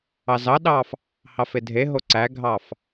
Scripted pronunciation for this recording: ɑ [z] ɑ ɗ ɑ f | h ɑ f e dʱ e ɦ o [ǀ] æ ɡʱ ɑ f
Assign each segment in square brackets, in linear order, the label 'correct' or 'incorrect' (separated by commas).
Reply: correct, correct